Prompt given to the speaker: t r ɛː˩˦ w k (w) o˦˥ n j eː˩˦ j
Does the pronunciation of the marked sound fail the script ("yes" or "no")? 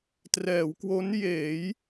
no